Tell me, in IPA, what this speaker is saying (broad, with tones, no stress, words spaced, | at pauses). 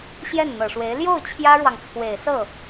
ɕjɛ˥˩n n̪ɤ˨˩ʂwe˧˥ɪ̯ ljo˥˩ʊ̯ t͡ɕʰjä˥ɻwɑ˨ŋt͡sʰwe˨˩ɪ̯sɤ˥˩